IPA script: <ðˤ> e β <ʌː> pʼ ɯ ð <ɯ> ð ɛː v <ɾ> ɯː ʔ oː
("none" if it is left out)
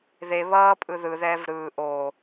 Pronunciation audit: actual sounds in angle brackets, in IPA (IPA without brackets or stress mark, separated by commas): ð, ʌː, ɯ, ɾ